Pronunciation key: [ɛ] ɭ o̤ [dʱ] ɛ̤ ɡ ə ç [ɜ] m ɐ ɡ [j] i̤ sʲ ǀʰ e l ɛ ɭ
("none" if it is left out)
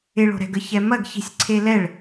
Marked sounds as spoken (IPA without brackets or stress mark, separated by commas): ɪ, ɾ, ɛ, ç